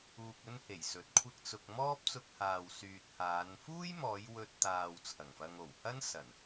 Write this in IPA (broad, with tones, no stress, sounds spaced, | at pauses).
uː˧ k̚ ɵ˥ n h e˨˩ j s ɵ˨˥ t̚ kʷʰ ɪ˥ k̚ t͡s ʊ˧ k̚ m ɔː˥ p̚ t͡s ʊ˧ k̚ h aː˨ w s yː˨ t̚ h aː˨˧ n f uː˥ j m ɔː˨˧ j w ɵ˧ t̚ t̪ aː˨ w t͡sʰ ɐ˨˩ ŋ f ɐ˧ ŋ o˨˩ w h ɐ˥ n s ɐ˨˩ n